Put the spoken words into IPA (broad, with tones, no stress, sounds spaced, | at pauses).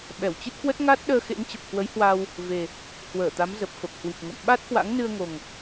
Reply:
ɓ ɛ˧˩ w t͡ɕ ɨ˦˥ t̚ k w ə˦˥ t̚ ŋ a˦˥ t̚ ɗ əː˧ x ḛ˧˥ ŋ t͡ɕ ə˨˩ p̚ k w ə˨˦ j h w a˧ w | v e˨˩ | h w əː˧˩ t̪ a˨˦ m z ə˨˩ p̚ f ə˨˩ p̚ h w i˨˩ p̚ ŋ ə̰˧˨ m ɓ a˦˥ t̚ k w a̰˧˥ ŋ n ɨ˧ ə̯ ŋ o˨˩ ŋ